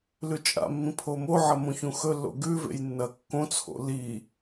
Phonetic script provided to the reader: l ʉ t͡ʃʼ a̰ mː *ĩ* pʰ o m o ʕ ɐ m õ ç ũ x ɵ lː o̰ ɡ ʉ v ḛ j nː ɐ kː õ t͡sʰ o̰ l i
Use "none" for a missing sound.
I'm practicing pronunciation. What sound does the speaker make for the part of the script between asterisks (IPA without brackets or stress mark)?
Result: ĩ